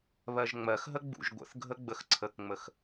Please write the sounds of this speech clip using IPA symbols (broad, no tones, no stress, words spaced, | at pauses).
βɜʒŋ͡mɜxɦə ɡ͡bṵʒɡʷə̰θɡʱə ɡ͡bəxǀʰəkŋ͡məx